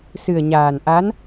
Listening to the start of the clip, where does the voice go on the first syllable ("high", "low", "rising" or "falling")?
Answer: low